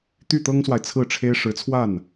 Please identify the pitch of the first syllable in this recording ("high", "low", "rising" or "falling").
falling